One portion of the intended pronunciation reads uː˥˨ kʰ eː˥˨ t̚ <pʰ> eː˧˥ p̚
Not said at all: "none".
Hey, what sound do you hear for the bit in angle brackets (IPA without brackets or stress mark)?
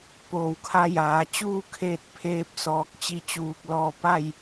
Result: pʰ